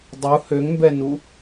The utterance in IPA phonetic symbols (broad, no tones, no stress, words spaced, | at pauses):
dˤu høŋmbɛnu